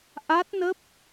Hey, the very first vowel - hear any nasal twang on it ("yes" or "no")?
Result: no